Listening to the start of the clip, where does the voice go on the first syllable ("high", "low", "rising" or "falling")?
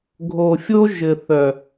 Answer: low